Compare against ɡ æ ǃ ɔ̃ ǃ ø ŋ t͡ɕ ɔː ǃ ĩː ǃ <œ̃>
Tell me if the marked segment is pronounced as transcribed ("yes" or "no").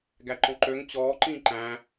no